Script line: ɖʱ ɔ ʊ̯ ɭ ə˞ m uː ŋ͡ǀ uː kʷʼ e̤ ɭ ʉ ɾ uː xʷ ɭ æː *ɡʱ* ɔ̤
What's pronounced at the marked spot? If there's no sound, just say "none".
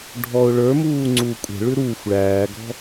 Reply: ɡ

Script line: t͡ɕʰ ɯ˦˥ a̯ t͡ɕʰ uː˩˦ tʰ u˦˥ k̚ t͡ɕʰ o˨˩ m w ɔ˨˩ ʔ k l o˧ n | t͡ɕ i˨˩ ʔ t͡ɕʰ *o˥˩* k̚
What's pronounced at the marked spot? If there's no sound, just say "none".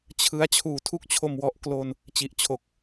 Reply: o˨˩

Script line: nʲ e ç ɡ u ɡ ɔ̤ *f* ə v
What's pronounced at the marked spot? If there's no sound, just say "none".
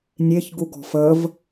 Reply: f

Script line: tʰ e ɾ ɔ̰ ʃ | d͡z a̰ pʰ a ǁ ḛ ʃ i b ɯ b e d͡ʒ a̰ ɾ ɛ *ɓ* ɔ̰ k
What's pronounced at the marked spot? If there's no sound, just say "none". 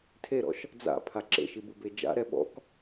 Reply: ɓ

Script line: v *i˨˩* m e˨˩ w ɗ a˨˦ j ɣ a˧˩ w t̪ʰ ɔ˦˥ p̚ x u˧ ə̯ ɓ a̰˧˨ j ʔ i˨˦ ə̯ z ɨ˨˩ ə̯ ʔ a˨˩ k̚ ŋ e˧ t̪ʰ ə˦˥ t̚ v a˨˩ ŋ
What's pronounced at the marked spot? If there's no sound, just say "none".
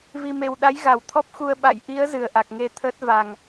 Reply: i˨˩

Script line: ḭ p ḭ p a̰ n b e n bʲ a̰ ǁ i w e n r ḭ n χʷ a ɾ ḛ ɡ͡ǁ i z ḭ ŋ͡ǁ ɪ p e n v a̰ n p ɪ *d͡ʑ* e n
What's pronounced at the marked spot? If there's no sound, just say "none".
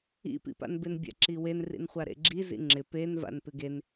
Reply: ɡ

